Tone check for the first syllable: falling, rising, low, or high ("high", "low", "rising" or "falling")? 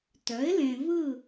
rising